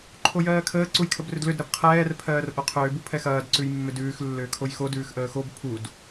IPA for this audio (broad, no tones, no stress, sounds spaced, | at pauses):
ǃʰ o j ɜː kʰ əː ǀ u j kʰ ə b r ʏ d l ʏ d ɾ ɐ b qʰ ɛː r pʰ ɜː r ʔ o qʰ ʏː b u pʰ ɛ x ɐː d ǀ ʉ j mː ʏ d ʉː x lː ʏː kʰ o j x o d ʉː x ʔ əː x o b pʰ u d